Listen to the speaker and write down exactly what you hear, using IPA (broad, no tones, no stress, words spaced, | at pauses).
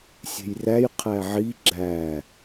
sʲe̤jræj qʰæʕi ɡ͡ǁæ